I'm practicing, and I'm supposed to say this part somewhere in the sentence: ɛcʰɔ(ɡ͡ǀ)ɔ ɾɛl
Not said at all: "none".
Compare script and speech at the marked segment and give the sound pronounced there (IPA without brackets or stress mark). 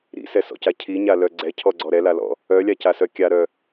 ɡ͡ǀ